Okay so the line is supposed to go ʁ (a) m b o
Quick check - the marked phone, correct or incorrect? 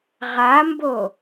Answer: correct